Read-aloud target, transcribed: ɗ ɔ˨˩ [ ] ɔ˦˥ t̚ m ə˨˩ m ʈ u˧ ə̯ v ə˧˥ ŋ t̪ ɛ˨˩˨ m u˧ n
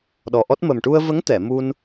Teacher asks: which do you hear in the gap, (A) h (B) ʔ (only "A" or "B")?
B